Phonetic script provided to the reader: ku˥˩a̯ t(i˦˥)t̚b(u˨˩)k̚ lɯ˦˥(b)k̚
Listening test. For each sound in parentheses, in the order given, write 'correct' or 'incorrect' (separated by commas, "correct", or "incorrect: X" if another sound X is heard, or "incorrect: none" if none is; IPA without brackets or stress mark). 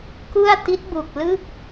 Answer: correct, correct, incorrect: none